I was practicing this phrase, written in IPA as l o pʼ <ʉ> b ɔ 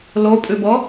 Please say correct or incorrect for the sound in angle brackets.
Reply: correct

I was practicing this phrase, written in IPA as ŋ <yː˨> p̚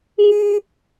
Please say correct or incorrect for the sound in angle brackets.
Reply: incorrect: yː˥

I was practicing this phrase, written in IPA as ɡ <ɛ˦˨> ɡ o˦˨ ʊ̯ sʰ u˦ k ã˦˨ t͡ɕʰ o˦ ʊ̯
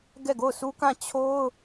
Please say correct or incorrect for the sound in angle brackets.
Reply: correct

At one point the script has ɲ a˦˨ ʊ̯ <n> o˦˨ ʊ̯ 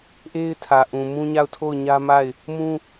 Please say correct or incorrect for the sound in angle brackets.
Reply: incorrect: tʰ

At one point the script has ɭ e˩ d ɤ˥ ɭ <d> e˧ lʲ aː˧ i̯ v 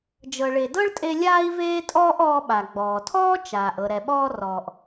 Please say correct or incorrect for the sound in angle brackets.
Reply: incorrect: tʼ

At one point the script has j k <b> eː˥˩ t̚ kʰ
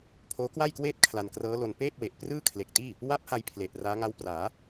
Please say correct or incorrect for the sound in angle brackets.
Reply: incorrect: w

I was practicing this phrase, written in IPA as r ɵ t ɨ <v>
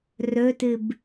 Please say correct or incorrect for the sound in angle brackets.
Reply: incorrect: b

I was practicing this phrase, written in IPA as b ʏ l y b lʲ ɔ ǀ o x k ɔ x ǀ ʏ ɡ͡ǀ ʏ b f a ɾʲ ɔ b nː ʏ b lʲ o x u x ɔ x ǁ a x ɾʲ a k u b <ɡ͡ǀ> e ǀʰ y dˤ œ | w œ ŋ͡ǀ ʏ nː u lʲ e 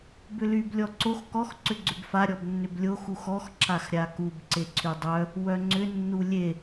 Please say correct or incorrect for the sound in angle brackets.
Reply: incorrect: ǀ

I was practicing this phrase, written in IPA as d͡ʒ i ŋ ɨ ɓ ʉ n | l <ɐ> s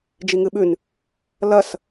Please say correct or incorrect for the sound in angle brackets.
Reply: correct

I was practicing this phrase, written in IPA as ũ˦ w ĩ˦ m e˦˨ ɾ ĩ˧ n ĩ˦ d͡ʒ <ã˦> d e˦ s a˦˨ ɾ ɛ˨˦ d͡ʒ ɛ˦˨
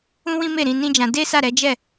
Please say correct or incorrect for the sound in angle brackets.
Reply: incorrect: ã˧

